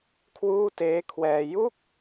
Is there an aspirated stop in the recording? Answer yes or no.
yes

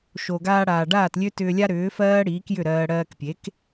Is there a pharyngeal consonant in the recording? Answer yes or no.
no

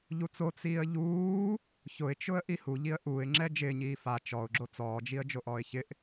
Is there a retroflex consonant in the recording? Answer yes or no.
no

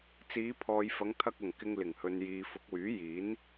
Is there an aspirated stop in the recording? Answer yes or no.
yes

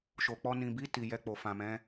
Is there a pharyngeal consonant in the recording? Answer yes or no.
no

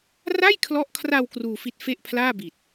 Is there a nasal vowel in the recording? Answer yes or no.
no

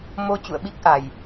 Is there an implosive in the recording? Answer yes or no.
yes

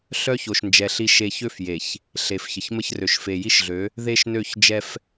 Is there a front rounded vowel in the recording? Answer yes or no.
yes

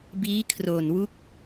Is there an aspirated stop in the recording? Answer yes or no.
yes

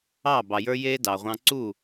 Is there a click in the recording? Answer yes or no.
yes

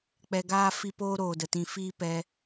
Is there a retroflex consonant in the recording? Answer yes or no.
no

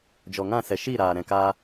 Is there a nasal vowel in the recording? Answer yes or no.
yes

